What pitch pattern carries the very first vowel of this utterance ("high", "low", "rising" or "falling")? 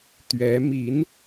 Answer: rising